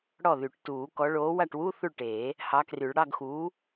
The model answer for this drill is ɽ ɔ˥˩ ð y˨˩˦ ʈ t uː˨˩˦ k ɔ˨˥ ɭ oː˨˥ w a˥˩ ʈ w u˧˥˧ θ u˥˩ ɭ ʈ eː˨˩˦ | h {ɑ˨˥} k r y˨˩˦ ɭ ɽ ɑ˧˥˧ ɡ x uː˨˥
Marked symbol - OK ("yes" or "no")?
yes